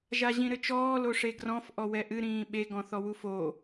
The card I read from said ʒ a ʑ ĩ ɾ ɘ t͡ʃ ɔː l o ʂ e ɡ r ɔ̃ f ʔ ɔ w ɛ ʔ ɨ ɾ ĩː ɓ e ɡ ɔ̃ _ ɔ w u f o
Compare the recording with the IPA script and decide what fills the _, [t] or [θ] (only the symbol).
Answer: θ